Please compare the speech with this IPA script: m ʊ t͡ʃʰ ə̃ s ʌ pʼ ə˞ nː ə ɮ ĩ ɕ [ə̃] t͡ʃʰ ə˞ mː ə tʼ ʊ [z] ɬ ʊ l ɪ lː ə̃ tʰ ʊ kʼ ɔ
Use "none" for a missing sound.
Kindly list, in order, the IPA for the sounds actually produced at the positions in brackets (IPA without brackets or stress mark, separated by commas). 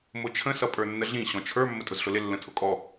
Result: ɔ̃, z